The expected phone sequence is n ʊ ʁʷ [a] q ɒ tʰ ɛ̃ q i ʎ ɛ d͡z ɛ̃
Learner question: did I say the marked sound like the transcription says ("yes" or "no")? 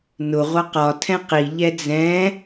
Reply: no